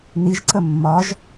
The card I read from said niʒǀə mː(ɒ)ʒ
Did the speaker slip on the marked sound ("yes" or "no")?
no